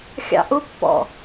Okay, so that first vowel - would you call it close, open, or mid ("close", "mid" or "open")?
open